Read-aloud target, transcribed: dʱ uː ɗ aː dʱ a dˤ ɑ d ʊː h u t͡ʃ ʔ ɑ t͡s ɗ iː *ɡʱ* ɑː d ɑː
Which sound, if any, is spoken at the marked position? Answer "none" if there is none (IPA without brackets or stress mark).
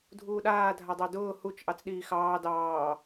x